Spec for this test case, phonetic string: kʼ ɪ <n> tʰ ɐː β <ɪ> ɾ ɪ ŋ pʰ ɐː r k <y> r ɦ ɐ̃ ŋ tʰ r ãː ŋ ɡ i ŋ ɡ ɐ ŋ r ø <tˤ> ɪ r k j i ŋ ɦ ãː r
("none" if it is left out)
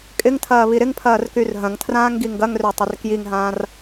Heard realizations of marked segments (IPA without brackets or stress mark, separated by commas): ŋ, i, y, tˤ